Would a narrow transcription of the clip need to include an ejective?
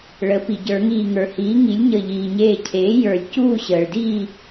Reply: no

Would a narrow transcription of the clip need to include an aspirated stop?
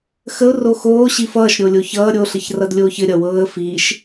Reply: no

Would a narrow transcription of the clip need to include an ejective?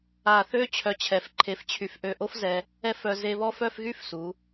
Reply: no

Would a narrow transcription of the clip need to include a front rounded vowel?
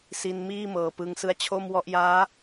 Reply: no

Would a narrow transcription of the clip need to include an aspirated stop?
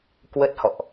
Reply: no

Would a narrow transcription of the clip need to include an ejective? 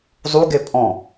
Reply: yes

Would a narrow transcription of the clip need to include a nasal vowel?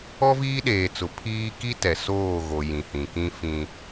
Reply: yes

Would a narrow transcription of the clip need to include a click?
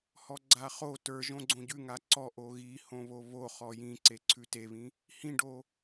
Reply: yes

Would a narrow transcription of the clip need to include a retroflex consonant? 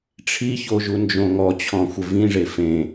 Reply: yes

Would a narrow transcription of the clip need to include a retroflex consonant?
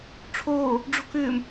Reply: yes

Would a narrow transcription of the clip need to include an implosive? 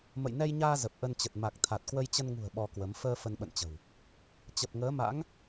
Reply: yes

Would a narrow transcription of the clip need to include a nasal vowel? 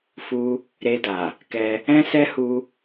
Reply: yes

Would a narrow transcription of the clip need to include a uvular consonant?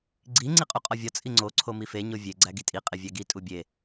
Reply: yes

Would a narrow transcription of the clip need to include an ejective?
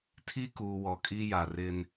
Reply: yes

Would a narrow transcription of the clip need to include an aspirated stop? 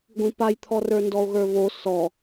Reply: yes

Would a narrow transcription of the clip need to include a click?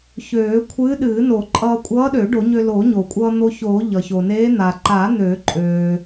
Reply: yes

